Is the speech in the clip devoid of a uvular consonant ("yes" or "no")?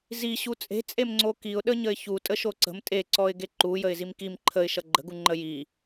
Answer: yes